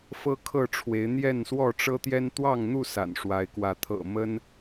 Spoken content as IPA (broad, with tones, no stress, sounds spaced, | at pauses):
f ɤ˦ kʰ ɤ˥˨ ʈ͡ʂʰ w e˨˦ ɪ̯ n̪ j ɛ˥˨ n s w ɔ˥˨ ʈ͡ʂ ɤ˦ t̪ j ɛ˦ n t̪ w ɑ˥˨ ŋ n̪ u˥˨ s a̰˨˩ n ʂ w a˨˦ ɪ̯ k w ä˨˦ t̪ʰ ɤ̰˨˩ m ə˦ n